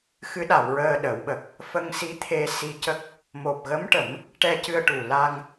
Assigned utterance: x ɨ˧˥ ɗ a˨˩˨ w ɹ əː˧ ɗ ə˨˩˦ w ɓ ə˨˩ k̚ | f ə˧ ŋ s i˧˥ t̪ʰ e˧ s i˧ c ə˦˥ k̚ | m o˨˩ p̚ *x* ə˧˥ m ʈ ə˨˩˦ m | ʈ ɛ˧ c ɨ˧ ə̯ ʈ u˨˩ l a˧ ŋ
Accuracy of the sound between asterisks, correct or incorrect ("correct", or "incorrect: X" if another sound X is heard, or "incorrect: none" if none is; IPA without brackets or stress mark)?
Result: incorrect: ɣ